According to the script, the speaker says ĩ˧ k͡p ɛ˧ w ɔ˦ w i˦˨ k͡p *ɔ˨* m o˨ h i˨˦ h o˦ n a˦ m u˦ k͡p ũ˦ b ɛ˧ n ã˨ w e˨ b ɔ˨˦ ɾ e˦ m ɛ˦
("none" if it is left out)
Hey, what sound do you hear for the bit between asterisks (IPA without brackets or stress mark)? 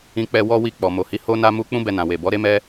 ɔ˨